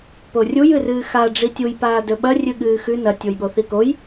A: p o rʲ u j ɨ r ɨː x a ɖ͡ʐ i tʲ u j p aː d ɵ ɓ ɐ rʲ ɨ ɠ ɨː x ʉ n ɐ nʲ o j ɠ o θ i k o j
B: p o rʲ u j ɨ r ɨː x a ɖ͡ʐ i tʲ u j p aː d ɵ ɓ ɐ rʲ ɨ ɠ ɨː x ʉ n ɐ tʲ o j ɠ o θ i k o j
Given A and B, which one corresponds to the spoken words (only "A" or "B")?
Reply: B